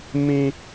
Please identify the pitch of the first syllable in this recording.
high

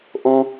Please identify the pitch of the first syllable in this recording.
high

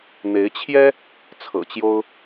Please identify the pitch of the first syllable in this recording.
rising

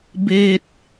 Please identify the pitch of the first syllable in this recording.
low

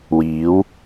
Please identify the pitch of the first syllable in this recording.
rising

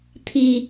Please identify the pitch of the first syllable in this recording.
low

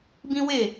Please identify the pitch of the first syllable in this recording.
high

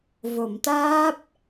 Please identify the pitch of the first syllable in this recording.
low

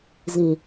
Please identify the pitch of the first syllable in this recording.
low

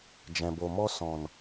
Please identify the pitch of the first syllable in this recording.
low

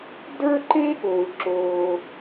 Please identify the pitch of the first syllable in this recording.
high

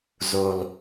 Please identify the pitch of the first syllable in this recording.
low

